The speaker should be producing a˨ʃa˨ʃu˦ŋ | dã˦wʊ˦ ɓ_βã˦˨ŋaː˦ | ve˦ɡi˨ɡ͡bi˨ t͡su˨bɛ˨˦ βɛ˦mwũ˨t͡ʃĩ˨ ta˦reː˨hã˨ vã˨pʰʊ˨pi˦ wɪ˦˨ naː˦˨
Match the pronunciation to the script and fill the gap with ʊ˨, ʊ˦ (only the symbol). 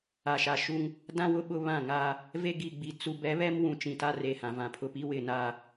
ʊ˦